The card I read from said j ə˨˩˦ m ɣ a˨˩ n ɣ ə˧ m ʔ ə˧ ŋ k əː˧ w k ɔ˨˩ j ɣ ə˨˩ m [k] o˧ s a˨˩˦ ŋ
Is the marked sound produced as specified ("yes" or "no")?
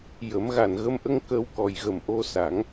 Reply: no